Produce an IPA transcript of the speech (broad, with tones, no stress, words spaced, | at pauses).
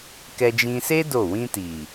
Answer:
kɛ˧d͡ʒĩ˧se˦ do˦˨ wĩ˧ti˨